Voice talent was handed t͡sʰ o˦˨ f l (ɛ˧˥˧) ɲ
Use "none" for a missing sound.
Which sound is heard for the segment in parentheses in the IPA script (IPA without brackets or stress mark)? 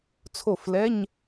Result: ɛ˧˥˧